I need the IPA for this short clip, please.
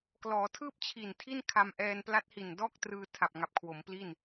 k l ɔː˩˦ tʰ ɯː˥˩ p̚ t͡ɕʰ i˨˩ n tʰ i˥˩ n kʰ a˧ m ʔ ɛː˧ n p l a˦˥ t̚ h i˨˩ n d ɔː˥˩ k̚ t r ɯː˧ tʰ a˨˩ p̚ ŋ a˨˩ p̚ kʰ w o˩˦ m p l i˥˩ n

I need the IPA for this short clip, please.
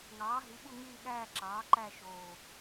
ŋ ɑː˩˥ ɦ i˩˥ ɓ u˦˨ ŋ yː˦˨ ɠ æː˦˨ ǁ ɑː˩˥ ǃ æ˦˨ ʃ oː˨˩

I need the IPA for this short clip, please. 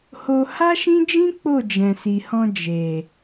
h o˧ h a˦ ʃ ĩ˦ d͡ʒ ĩ˦ k͡p o˦˨ d͡ʒ ɛ̃˨ s i˨ h ɔ̃˧ d͡ʒ e˨

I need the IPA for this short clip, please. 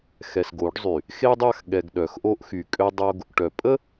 x ɛ˨ s ɡ o˨˦ ɖ zˤ y˨ | x e˦ dˤ a˦˨ x ɠ ɛ˨ ɡ ɗ œ˨ x ʔ o˦ ʔ x y˨ kʼ ø˦ dˤ o˦ ɡ | ʈ œ˨ pʼ ə˦

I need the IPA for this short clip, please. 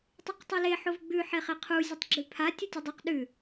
tˤ ʉ q tˤ o l e ħ o v ɡ͡b ʉ ħ e χ e qʰ u zʲ ɨ tˤ ɡ͡ǁ ʉ pʰ a tʲ ɵ tʲ ɵ dˤ u q ɗ ʉ

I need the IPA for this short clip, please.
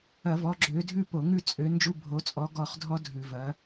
ɐ˧˩˧ v ɔ˨˦ ɡ͡ǁ ø˨˦ dʱ ʉ˦˨ p o˧˩˧ ŋ ʉ˦˨ t͡sʼ ø˨˦ n d͡ʒ u˧˥˧ bʱ o˨˦ t͡sʼ ɔ˨˦ ɡ ɔ˦˨ χ dʱ ɔ˦˥ dʱ ʉ˧˩˧ v ɐ˨˦

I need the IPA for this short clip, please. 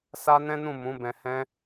s a˦ n ɛ̃˦ n ũ˦˨ m ũ˨˦ b ɛ̃˧ h ɛ̃˦

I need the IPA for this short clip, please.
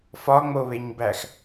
f ɒ ŋ͡m o β e ɲ b æ x

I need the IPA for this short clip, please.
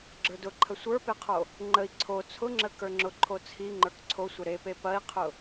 ɡ͡ǁ ə˞ d ʊ ǃʰ ə sʷ ə˞ p e qʰ o | ŋ͡ǃ ə i̯ ǀʰ o t͡sʰ ʊ ŋ͡ǁ ə k ə˞ ŋ͡ǁ ʊ ǃʰ o t͡sʰ i ŋ͡ǃ ə˞ k ǀʰ o sʷ ə ɾ e p e p ɐ i̯ qʰ ʊ

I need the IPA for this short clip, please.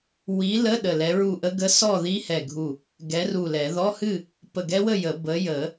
w i˨˥ l ə˧˥˧ ɗ ə˧˩ l ɛ˨˥ ɹ u˥˨ ʔ ə˦˥ ɡ ə˧˥˧ s ɔ˥˨ ð i˦˥ h ɛ˧˩ ɡʱ u˧˩ | ɡ ɛ˨˥ r u˧˩ l ɛ˨˩˦ ð ɔ˧˥˧ h ɨ˥˨ | p ə˧˩ ɡ ɛ˦˥ w ə˥˨ j ə˨˩˦ b ə˨˥ j ə˨˩˦

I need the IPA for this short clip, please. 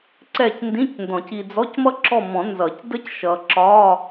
ǀ ɛ˦˨ c n d ĩ˧˥˧ c n d ɔ̃˨˩˦ c i˨ d͡z ɔ˧˥˧ c m ʌ˥ ǁ ɔ˦˨ m ɔ̃˨˩˦ n z ʌ˨˩˦ c d ə˥ c ʃ ʌ˨ ǁ ɒ˧˥˧

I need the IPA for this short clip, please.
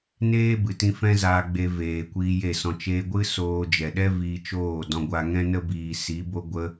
n eː˦ b ɨ˨ t ĩ˧ f ɛ̃˦ z aː˧ ɡ͡b e˧ v eː˨ kʷ iː˧ j e˦˨ s ɔ̃˧ t͡ʃ eː˧ ɡʷ ɨ˦ s oː˧ d͡ʒ ɛ˨ ɗ ɛ˦ v iː˧ t͡ʃ oː˦˨ d ɔ̃˧ ɡʷ a˧ ŋ ɛ̃˦ n ə˦ b iː˨ s i˨˦ b o˧ ɡʷ ə˧

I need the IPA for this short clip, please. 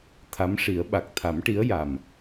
t̪ʰ a˧˥ m ʂ i˨˩˦ ə̯ ɓ a˨˩ k̚ t̪ʰ a˨˩˦ m ʈ i˧˥ ə̯ j a˨˩ m

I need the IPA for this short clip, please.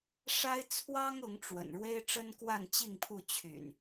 ʂ a˦ ɪ̯ t͡sʰ w ɑ˦ ŋ ʊ˨˦ ŋ ʈ͡ʂ w ə̰˨˩ n ɻ w e˦ ɪ̯ ʈ͡ʂ ə˦ n k w a˥˨ n t͡ɕ i˥˨ ŋ pʰ u˥˨ t͡ɕʰ y̰˨˩ n

